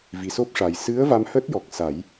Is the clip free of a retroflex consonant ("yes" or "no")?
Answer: no